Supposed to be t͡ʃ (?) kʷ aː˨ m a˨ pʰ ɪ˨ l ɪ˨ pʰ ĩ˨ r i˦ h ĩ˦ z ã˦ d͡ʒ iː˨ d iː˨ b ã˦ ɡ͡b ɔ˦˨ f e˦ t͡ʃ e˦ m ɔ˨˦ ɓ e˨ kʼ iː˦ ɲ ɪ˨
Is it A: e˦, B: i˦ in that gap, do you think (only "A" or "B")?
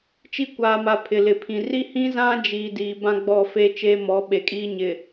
B